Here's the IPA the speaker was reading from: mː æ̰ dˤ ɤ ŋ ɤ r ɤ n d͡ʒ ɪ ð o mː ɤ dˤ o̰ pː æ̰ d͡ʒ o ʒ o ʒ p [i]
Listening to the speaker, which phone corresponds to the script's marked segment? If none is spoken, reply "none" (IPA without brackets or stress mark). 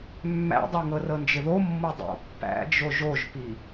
i